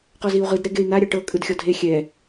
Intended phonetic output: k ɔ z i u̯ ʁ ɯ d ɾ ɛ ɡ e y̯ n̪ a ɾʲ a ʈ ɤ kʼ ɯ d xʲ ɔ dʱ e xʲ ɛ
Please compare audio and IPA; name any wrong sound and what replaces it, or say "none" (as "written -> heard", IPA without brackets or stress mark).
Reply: k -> q